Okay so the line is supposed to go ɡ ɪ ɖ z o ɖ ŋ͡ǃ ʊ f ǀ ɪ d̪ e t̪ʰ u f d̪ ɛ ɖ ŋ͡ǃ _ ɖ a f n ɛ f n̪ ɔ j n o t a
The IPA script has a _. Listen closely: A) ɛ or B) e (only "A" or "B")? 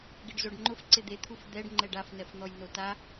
A